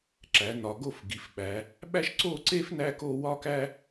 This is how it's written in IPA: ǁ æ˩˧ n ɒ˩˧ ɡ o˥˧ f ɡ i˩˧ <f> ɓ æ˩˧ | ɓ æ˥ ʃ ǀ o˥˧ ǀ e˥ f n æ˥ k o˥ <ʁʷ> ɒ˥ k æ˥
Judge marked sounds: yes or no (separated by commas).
yes, no